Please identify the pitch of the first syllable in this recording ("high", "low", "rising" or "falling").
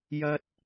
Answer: high